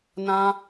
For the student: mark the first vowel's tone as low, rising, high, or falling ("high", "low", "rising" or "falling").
high